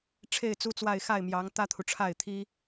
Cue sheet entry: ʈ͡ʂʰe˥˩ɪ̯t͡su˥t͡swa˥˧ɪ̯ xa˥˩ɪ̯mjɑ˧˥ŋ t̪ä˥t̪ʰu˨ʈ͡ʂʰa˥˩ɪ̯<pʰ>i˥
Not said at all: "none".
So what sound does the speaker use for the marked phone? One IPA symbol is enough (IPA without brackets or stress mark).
t̪ʰ